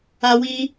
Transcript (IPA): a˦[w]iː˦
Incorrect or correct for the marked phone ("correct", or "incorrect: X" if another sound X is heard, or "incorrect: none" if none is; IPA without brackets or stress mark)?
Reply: correct